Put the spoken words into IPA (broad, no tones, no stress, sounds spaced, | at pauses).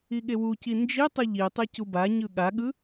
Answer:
i ɠ e w u c i n d͡ʒ i tˤ ɯ ʎ i tˤ ɛ c u b a ɲ ɯ ɠ a ɠ ɯ